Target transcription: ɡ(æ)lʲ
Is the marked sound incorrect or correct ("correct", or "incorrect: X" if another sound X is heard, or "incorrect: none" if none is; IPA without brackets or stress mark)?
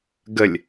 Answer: incorrect: ə